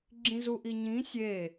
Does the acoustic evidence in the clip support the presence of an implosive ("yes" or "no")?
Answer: no